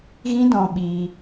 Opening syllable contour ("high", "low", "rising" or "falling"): high